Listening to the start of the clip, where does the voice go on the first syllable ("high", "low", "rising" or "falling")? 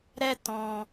high